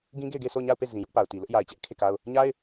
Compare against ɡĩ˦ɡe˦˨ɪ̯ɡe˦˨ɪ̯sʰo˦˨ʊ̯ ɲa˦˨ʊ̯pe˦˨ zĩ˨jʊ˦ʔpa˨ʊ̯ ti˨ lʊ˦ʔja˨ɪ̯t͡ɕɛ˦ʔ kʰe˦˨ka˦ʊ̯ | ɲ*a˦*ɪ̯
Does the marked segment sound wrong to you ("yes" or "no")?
no